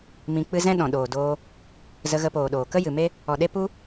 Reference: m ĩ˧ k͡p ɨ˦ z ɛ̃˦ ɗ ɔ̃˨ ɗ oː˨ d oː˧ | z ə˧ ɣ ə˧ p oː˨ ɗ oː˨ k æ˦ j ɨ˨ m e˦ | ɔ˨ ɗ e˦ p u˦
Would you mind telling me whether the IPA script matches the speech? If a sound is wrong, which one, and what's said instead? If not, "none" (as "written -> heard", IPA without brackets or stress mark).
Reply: æ˦ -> ə˦